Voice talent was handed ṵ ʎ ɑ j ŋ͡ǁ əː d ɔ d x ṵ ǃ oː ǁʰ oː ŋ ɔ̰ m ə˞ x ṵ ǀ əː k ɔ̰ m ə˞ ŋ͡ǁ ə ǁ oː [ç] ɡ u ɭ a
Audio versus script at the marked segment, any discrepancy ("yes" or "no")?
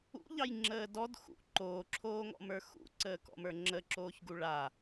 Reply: no